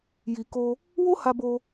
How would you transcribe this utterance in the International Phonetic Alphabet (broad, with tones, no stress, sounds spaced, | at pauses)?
j i˨ k o˧ | w o˦ h a˧ b o˧